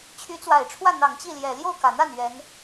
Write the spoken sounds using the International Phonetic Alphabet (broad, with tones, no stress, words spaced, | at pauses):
t͡ɕʰy˧˥t͡swa˨˩ɪ̯ʈ͡ʂʰwä˥˩n̪ɑ˨˩ŋ t͡ɕi˥˩ljɛ˨˩ ljo˥˩ʊ̯kä˨˩n̪a˥˩n ɥɛ˧˥n